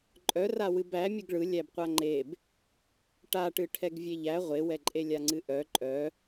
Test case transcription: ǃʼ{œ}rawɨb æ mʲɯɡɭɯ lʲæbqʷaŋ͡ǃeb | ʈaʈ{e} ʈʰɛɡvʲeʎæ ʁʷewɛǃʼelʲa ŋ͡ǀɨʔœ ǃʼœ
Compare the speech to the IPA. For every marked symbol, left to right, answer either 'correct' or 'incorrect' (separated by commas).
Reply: correct, incorrect